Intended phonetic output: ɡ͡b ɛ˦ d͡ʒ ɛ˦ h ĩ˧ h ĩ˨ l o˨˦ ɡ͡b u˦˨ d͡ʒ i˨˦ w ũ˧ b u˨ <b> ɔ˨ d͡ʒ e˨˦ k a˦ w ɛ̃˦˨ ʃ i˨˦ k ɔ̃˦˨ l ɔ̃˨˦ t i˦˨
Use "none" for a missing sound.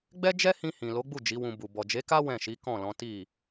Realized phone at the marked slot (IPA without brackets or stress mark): b